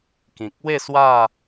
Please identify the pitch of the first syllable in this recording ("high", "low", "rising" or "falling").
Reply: low